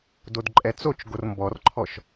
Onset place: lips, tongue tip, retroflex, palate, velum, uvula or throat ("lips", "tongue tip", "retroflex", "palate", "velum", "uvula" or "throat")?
tongue tip